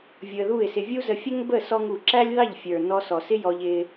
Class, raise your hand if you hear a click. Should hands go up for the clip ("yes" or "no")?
yes